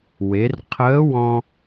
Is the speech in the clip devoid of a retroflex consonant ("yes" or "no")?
yes